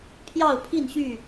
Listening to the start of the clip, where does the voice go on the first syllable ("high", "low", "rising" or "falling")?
falling